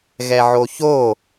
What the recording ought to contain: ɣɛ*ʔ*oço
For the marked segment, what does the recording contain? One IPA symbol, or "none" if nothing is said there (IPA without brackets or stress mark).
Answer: ʕ